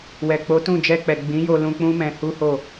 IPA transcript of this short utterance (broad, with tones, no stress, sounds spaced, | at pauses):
w ɛ˨ k͡p o˨˦ t ũ˦˨ d͡ʒ ɛ˧ k͡p ɛ˨ ɡ͡b ĩ˨˦ j o˧ l ũ˧ k͡p ũ˦ m ɛ̃˧ h u˦ h o˦˨